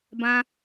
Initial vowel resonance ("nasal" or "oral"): nasal